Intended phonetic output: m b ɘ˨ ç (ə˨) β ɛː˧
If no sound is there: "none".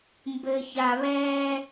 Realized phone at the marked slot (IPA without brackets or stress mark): a˨